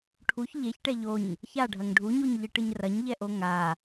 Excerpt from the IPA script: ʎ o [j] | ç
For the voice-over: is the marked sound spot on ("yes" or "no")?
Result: no